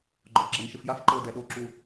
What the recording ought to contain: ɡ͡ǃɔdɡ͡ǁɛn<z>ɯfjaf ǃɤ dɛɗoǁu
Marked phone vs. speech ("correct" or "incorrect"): incorrect